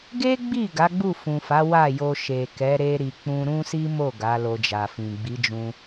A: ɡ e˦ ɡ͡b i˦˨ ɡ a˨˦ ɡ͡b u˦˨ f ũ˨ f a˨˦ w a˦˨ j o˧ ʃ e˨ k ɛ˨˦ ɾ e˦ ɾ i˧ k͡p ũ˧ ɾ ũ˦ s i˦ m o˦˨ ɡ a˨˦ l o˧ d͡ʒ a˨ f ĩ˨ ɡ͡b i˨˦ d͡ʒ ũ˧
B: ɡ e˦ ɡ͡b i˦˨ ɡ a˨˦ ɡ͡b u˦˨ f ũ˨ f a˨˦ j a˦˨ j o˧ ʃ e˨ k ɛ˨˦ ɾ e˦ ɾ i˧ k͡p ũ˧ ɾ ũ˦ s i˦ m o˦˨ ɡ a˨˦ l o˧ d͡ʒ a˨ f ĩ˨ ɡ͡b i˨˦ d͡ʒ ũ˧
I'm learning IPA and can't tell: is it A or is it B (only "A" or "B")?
A